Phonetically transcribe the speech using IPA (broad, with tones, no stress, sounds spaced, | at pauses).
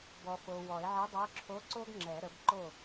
b ɔ˨ f o˨ w ɔ˨˩˦ e̯ ʕ ɛ˧˥ dˤ ə˞˧˥ ǁʰ o˧˥ ǀ o˥ ɡ ŋ͡ǁ ɛ˨˩˦ ɾ ə˩˥ b ǃ o˥˨